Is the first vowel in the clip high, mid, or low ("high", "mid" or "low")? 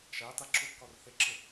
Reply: low